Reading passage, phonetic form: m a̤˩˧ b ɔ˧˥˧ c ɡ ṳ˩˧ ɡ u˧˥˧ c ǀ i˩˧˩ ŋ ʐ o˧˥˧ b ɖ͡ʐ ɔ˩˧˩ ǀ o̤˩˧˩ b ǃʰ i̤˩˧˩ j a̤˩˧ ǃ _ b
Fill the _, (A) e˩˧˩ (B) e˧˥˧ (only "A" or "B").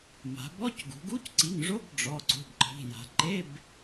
B